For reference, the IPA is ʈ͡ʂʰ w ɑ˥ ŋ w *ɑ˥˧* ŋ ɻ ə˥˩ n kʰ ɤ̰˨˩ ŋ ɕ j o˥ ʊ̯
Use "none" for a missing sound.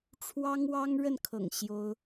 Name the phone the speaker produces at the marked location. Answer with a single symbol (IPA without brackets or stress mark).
ɑ˥